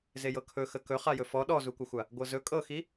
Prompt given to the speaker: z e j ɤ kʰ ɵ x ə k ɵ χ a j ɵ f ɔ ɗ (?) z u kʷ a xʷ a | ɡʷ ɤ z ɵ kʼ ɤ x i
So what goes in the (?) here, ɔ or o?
ɔ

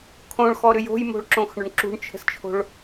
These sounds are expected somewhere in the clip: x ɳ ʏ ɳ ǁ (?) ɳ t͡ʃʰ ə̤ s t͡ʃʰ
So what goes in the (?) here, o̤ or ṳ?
ṳ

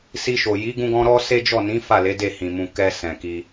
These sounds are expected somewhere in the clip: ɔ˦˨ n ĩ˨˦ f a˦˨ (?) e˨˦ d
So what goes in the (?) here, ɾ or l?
l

